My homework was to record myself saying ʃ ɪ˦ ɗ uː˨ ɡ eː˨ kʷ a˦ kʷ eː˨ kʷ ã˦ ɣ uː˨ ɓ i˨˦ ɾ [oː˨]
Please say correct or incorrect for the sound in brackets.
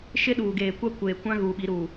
incorrect